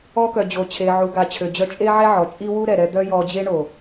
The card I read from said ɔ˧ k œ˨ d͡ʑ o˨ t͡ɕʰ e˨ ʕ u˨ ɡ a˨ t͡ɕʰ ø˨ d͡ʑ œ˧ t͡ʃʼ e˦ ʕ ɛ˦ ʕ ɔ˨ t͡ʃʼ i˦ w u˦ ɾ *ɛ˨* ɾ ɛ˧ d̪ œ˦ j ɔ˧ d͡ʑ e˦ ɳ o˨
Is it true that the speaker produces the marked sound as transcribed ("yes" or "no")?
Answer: yes